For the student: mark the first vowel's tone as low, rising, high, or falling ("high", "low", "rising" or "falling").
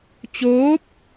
rising